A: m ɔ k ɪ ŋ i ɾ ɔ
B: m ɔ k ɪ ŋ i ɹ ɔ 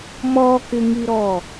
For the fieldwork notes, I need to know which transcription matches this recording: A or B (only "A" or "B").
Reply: A